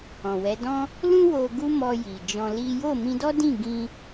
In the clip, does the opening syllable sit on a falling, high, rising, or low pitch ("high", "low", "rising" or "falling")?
low